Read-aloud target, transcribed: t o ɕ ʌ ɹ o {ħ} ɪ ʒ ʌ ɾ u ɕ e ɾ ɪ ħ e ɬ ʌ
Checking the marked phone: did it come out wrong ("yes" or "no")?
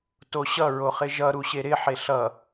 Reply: yes